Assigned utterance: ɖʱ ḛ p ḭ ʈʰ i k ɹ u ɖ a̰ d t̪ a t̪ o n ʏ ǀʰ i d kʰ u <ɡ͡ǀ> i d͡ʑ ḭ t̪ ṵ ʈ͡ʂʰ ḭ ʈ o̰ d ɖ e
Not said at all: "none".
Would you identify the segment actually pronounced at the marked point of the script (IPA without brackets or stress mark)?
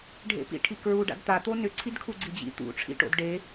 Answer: ɡ͡ǀ